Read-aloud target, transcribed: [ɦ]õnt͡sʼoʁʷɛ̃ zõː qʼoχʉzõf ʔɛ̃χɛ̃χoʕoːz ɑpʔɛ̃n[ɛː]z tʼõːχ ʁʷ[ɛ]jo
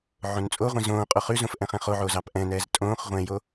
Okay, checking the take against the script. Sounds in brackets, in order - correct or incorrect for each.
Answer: incorrect: ʕ, correct, incorrect: ɛ̃

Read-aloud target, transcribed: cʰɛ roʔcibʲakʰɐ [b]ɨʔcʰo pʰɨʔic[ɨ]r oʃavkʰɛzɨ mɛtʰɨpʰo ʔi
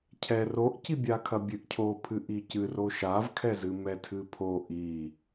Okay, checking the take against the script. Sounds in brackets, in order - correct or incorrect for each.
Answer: incorrect: bʲ, correct

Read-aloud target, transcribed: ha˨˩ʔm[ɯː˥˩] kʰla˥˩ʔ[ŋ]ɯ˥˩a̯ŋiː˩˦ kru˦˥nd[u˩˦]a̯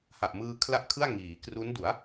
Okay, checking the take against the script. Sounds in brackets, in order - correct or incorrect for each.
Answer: incorrect: ɯː˧, incorrect: kʰ, correct

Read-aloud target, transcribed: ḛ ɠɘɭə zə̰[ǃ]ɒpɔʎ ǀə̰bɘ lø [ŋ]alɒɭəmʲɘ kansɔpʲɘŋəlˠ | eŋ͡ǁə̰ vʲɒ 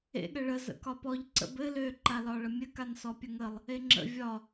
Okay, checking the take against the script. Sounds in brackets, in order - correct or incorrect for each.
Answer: incorrect: k, incorrect: ǃ

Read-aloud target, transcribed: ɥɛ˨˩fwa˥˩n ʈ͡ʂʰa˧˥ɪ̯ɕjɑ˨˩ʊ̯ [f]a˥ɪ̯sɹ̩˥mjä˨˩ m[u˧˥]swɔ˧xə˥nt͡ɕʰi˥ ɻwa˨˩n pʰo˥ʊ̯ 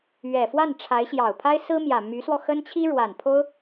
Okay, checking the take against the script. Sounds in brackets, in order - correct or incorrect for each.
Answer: incorrect: pʰ, incorrect: y˧˥

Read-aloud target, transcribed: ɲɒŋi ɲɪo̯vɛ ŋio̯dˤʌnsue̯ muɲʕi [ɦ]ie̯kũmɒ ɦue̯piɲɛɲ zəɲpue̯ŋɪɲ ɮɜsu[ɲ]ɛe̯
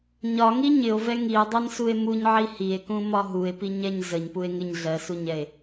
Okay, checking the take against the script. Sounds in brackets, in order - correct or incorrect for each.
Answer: incorrect: h, correct

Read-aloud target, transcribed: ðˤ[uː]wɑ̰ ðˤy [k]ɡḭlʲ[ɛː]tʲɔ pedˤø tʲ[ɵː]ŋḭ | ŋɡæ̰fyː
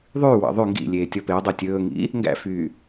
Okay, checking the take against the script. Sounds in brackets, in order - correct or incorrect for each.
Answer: incorrect: yː, incorrect: ŋ, incorrect: eː, correct

